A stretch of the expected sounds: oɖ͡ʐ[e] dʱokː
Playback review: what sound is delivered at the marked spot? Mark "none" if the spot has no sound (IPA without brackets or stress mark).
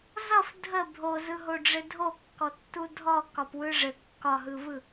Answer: ɘ